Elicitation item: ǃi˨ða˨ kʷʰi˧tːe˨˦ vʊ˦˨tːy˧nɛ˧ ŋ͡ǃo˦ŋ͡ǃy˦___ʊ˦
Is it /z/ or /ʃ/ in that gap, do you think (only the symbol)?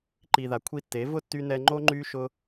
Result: ʃ